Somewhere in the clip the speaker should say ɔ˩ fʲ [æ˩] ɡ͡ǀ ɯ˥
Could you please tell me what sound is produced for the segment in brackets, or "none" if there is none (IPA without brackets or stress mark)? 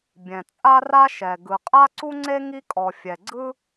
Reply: ɛ˩